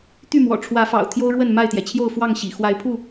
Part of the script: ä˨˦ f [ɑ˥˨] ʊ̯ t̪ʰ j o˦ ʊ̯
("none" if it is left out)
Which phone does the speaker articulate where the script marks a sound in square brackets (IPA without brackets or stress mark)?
ɑ̰˨˩